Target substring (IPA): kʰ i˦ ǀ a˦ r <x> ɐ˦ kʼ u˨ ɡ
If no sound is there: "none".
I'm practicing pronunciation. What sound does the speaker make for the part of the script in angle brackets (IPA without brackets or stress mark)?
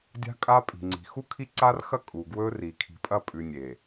x